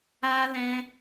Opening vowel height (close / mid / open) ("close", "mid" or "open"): open